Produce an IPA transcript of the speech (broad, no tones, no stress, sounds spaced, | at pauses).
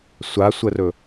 sʷ a sʷ ə r ɵ